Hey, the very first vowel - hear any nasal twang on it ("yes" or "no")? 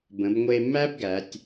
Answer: yes